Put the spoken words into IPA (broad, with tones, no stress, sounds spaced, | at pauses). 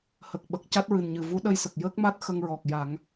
h ə˨˩ k̚ ɓ ə˨˩ k̚ c a˦˥ t̚ ɹ ɨ˨˩ n ɲ ɨ˨˩ v u˧˥ ɗ ə˧ j s ə˨˩ k̚ j əː˦˥ k̚ m a˦˥ t̚ x ə˧ ŋ ɹ ɔ˨˩ k̚ j a˨˩˦ ŋ